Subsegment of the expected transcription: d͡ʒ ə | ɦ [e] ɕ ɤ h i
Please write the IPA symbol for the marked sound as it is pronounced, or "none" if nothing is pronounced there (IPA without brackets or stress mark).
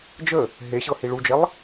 e